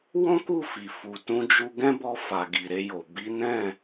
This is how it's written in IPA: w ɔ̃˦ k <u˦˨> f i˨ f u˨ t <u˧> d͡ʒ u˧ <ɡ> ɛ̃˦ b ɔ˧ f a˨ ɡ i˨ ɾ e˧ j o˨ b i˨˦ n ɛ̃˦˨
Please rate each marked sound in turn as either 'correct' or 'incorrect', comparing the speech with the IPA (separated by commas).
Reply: correct, incorrect, correct